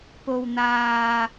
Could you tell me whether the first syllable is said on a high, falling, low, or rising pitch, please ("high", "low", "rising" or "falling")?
low